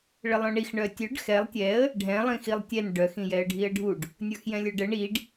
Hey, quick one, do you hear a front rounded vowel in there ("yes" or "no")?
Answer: yes